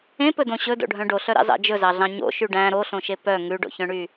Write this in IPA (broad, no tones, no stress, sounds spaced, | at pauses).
ẽ p ɵ d õ ɕ ɵ d o̰ ɖʱ œ̃ ɖ o ɬ œ ɾ ɑ̰ z ɑ̰ d͡ʒ ɵ z ɑ ɮ ɑ̃ ɲ o̰ ʃ y ɖ æ̃ ɾ o ɬ õ ʃ e p œ ŋ ʉ ɖ o̰ ç œ̃ ɳ y